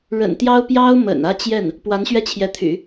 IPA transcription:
ɻə̰˨˩nt̪jɑ˥ʊ̯ pjɑ˥ʊ̯mə̰˨˩nä˥˧ t͡ɕjɛ˥˩n | pwa˧˥nɕɥɛ˥t͡ɕʰjɛ˧˥t̪ʰy̰˨˩˦

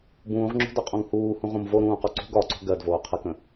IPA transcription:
bũːʁŋ͡ǁo̤dɒqʼõŋ huːhũʁõm voɾũːqɒ ǀṳɡ ɒǀo̤ ɡɜdvoː qʰəkə̃

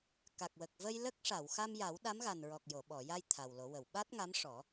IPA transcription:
ka˨˩k̚wə˨˩k̚və˧j lə˦˥k̚ ʂa˨˩˨wxa˧mja˨˩˦w ɗa˧˥mɣa˨˩nɹɔ˨˩k̚ jo˨˩˨ɓɔ˨˩˨ja˧j t̪ʰa˨˩wlo˨˩˦wə˨˩˨w ɓa˦˥t̚ŋa˧˥mʂɔ˨˩˦

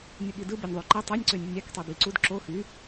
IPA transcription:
nʲɯɠidɯ benʲðˤyǃæ tˤenʲǀønʲunʲ æktˤebi ǀud ǁo xy

